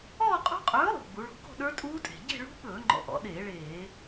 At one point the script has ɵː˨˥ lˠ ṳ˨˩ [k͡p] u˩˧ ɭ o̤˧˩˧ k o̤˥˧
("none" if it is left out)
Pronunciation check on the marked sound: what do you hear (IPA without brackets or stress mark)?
ɡ͡b